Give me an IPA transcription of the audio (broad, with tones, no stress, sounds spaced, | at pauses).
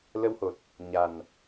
l ə˧ w h o˨˩ t̚ | ɲ a˨˩ n